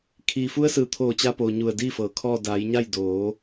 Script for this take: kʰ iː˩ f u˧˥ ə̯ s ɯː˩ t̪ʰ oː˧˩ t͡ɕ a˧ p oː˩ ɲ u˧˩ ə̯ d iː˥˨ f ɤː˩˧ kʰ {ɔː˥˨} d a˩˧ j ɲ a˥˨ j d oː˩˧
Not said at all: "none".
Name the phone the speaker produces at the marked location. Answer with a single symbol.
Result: ɔː˥˨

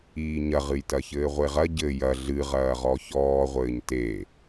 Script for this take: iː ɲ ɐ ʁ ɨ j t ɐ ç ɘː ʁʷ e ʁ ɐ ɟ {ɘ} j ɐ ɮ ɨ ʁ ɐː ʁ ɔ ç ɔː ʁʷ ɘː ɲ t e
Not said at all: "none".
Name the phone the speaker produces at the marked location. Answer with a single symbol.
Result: ɘ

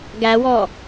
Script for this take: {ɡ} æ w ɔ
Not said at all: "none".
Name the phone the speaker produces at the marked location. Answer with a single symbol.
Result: ɡ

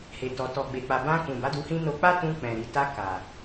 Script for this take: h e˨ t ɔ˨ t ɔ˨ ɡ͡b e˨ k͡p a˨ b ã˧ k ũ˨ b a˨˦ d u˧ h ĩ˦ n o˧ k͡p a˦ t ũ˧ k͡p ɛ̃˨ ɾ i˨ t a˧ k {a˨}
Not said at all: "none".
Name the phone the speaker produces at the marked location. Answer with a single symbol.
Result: a˨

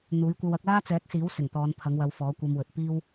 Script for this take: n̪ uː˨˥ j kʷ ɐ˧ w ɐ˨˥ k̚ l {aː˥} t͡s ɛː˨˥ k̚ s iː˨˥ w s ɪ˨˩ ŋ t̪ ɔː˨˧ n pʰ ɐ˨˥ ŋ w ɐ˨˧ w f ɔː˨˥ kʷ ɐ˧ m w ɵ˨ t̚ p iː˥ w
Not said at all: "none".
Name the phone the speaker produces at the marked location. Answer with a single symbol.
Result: aː˥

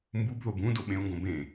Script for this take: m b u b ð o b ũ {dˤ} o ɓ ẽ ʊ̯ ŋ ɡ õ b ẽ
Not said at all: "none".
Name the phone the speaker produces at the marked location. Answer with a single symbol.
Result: d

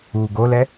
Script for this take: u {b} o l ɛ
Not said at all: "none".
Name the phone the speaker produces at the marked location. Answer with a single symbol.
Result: ɡ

